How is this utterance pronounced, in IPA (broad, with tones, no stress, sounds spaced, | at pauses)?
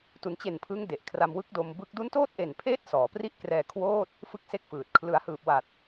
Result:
t u˩˦ n t͡ɕ e˨˩ n pʰ ɯ˦˥ ŋ d e˨˩ ʔ kʰ r a˧ m w ɯ˦˥ k̚ d o˧ m b ɯ˦˥ k̚ d u˦˥ n t oː˥˩ t̚ ʔ e˨˩ n pʰ eː˦˥ t̚ s ɔː˩˦ p r i˥˩ ʔ k r ɛː˧ kʰ w oː˥˩ t̚ | f ɯ˥˩ k̚ s e˥˩ k̚ f ɯː˨˩ t̚ kʰ l ɯ˩˦ a̯ h ɯː˨˩ p̚ w a˨˩ t̚